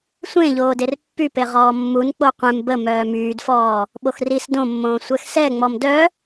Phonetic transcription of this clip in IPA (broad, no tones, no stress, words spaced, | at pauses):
sʷẽ ʎoːderpːype ʁɔːmːun k͡poqʷẽm bə mœːmyːdfɔː | ɓoxris dõmːõː sʷɛxsɛ ŋ͡mɔmdœ